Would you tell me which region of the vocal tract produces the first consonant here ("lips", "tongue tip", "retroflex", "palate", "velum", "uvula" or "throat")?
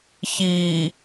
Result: palate